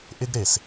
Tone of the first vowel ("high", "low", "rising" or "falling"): high